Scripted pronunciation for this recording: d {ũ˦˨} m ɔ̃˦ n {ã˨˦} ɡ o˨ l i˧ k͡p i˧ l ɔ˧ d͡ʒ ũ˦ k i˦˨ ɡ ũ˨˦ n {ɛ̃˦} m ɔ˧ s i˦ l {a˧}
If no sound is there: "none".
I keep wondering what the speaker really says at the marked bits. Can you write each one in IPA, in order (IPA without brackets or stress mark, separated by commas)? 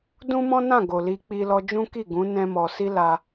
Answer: ũ˦, ã˦˨, ɛ̃˦, a˧